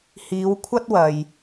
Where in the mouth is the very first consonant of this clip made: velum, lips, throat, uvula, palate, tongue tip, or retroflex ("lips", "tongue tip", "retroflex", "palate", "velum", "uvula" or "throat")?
throat